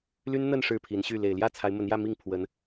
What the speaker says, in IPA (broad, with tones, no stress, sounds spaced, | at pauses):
l y˥ n n̪ ə˥˧ n ʂ ɻ̩˥˩ pʰ i˧˥ n ɕ y˥˩ l e˨˩ ɪ̯ l j ä˥˩ t͡sʰ a˧˥ ɪ̯ m ə˧˥ n j ä˥˧ m i˥˩ ŋ pʰ w ə˧˥ n